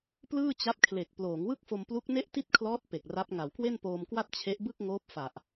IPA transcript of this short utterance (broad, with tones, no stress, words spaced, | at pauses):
plɯː˥˩t͡ɕa˦˥p̚kʰle˨˩k̚ ploː˩˦ŋwɯ˥˩k̚fo˧m plu˦˥k̚ne˥˩ʔti˥˩t̚kʰlɔː˦˥t̚ pe˨˩k̚ra˦˥p̚ ŋa˩˦wkwe˥˩npoː˧mkwa˥˩t̚ t͡ɕʰe˦˥ʔbɯ˥˩k̚ŋoː˦˥p̚ fa˨˩ʔ